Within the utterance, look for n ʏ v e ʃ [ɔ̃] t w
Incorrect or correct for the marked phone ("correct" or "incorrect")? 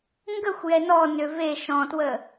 correct